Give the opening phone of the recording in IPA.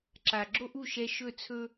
ǁ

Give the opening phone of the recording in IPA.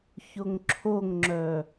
ç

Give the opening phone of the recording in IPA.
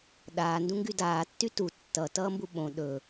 ɗ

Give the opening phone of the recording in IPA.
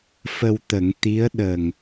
f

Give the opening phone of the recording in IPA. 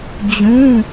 d͡ʑ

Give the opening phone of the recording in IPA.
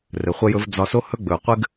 r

